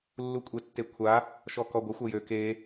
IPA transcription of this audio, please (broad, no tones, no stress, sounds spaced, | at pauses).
lː u kʷʼ e tː e kʷʰ a | ʃ ɔ k ɔ ɡʷ ɐ xʷ ɐ j ø k e